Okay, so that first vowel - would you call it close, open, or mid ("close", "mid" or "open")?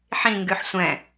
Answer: close